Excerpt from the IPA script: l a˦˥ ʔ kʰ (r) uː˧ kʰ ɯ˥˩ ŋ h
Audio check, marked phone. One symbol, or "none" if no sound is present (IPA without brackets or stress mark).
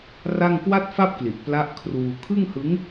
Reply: r